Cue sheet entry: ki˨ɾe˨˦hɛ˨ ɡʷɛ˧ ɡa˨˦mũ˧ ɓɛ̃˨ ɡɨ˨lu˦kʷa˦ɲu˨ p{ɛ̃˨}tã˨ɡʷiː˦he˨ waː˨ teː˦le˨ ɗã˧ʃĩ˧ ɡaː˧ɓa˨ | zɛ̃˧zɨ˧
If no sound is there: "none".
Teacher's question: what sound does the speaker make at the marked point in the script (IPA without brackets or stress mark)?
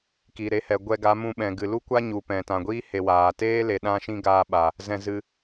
ɛ̃˨